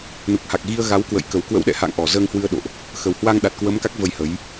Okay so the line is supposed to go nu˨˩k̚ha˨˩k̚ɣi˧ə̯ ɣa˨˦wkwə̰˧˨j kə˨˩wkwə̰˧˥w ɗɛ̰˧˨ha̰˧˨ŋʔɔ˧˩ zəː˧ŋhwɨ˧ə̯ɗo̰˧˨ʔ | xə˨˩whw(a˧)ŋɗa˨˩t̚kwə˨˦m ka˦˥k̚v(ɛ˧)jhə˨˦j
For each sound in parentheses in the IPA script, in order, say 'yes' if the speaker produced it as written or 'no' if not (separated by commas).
yes, no